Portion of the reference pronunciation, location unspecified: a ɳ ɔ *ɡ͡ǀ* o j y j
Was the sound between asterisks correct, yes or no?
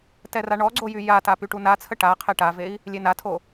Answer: yes